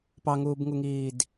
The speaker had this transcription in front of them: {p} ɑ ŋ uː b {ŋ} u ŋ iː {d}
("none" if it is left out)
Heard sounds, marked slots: p, ŋ, d

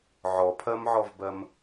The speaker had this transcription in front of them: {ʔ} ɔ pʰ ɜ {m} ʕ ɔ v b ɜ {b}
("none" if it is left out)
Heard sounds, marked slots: ʕ, m, m

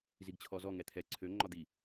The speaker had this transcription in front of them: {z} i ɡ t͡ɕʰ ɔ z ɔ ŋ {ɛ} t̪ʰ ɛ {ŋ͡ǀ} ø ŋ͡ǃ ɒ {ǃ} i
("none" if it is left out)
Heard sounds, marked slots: z, ɛ, ǀʰ, d̪

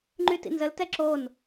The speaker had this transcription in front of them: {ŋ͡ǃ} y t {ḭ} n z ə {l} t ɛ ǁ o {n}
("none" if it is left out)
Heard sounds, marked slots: ŋ͡ǃ, ḭ, l, n

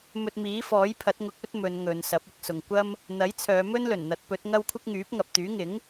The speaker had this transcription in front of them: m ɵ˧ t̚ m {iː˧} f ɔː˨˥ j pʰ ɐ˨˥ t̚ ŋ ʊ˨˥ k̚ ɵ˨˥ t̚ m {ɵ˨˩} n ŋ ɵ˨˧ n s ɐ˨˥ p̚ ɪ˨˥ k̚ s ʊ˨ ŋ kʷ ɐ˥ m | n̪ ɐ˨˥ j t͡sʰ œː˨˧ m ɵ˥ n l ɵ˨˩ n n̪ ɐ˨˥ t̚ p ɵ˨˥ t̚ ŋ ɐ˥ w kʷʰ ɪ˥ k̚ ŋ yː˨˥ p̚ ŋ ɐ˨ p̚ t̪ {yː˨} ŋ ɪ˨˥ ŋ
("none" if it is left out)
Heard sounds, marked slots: iː˨˥, ɵ˨˧, yː˨˥

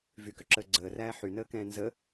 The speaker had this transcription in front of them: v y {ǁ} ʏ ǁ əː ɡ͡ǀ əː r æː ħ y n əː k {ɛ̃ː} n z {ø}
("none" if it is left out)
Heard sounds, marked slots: k, ɛ̃ː, ə

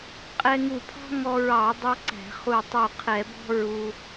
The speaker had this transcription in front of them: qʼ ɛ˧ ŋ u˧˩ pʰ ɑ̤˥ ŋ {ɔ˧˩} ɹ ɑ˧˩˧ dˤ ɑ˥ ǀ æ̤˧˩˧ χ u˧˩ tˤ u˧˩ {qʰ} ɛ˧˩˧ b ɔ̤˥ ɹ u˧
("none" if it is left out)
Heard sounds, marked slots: ɔ˧, qʰ

